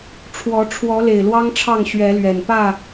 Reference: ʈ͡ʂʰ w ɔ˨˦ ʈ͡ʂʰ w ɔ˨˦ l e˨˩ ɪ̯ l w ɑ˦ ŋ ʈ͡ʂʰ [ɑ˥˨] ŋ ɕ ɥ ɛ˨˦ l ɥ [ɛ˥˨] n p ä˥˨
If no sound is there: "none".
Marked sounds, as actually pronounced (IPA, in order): ɑ˥˨, ɛ˨˩

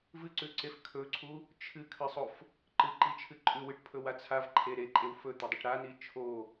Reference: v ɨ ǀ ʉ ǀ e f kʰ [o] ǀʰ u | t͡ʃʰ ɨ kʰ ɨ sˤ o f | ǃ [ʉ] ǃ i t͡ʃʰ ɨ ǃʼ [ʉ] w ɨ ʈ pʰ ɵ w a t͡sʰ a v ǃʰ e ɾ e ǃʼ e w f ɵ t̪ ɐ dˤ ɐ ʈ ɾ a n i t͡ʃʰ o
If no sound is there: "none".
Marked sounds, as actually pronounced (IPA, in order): ɵ, ɨ, ʉ

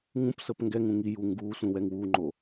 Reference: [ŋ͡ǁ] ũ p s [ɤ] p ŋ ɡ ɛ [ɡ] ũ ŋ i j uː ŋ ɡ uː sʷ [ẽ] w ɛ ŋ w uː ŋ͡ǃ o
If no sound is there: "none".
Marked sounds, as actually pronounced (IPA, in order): ŋ, ɤ, ŋ, ĩ

